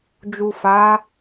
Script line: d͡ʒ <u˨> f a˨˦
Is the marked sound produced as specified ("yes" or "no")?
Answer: yes